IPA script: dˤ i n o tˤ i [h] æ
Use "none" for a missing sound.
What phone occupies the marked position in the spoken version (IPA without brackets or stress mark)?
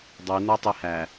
h